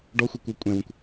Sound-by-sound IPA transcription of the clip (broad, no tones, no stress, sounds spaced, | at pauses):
ɖ ɔ xʷ ɛ kʷ œ kʷʼ ɛ̃ w ə̃ kʷ